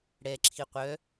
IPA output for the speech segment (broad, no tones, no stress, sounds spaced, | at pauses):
ɽ ɛ ǁʰ i qʷ œ